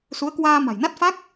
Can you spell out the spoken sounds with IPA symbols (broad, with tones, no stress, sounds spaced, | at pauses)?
s u˨˦ ə̯ k w aː˧ m a̤˨˩ j n a˦˥ t̚ f a˦˥ k̚